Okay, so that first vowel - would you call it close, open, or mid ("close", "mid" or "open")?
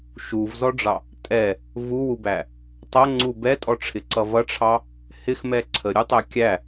close